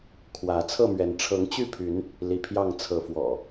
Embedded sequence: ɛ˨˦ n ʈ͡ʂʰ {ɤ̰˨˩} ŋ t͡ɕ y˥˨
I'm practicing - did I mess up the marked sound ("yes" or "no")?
yes